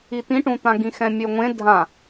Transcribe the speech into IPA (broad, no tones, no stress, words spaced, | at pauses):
it̪ĩʈũt̪ã ɡĩxɛ̃mʲøŋʷẽ dʱã